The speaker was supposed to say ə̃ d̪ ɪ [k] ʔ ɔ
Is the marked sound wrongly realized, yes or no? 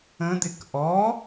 no